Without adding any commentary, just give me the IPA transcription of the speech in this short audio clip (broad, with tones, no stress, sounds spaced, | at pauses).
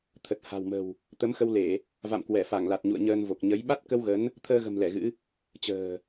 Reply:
t̪ʰ ə˨˩ t̚ h a̤˨˩ w m ə̤˨˩ w | t̪ ə˨˦ m x ə˧ w l e˧˩˨ | v a̰˧˨ m k w ɛ˧˩ f a˧˩ ŋ l a˨˩ t̚ ɲ ṵ˧˨ ə̯ ɲ əː˧ n v o˨˩ k̚ ɲ ə˨˦ j ɓ a˦˥ t̚ k ə˧ w ɣ ə˨˦ n | t̪ʰ əː˧ ɣ ə̤˨˩ m l ɛ˧˩ ɣ ɨ̰˧˥ | t͡ɕ ə̤ː˨˩